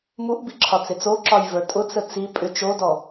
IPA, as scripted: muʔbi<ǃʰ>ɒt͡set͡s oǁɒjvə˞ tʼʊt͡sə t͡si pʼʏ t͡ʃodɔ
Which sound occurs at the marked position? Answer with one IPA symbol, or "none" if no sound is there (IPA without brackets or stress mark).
ǁʰ